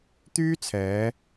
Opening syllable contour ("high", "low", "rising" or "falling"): high